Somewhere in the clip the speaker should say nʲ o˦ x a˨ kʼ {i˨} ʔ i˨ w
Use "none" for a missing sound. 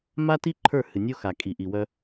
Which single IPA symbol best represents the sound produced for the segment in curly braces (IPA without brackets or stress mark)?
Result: i˨